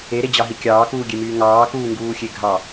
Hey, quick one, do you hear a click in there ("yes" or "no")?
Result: no